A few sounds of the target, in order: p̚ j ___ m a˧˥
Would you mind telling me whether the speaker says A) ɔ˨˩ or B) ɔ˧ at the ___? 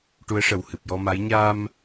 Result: B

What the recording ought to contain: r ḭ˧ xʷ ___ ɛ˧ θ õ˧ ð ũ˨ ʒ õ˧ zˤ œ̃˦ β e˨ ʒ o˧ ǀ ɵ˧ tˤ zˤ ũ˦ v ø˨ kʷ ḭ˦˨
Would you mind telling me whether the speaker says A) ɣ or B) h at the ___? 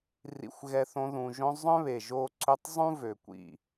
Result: A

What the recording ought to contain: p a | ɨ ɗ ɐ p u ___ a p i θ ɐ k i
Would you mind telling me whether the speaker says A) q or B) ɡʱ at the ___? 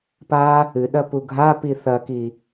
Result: B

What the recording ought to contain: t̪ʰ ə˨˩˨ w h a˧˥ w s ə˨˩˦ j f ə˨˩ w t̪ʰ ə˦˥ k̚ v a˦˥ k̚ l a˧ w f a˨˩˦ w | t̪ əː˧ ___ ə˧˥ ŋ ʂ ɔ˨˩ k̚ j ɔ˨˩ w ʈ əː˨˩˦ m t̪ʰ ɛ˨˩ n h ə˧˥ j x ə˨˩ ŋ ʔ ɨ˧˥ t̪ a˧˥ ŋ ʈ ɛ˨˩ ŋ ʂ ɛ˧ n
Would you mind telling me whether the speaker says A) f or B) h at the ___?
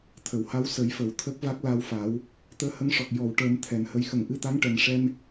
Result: B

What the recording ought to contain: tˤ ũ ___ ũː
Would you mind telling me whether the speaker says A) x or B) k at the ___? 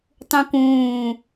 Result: B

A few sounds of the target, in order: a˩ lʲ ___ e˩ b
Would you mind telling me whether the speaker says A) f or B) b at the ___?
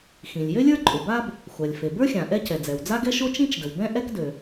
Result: A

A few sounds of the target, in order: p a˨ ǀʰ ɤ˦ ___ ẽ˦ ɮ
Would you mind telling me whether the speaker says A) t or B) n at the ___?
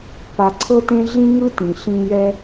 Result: A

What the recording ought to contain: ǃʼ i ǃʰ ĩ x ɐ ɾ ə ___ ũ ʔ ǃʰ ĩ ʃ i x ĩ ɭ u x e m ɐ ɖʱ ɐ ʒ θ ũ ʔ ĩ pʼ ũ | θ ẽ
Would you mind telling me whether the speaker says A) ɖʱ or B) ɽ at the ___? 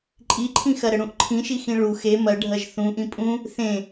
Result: B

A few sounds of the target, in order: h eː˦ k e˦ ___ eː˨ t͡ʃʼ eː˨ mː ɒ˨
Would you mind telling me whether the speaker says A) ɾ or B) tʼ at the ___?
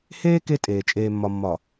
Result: B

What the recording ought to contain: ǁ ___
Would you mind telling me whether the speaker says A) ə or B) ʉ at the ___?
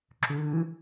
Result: B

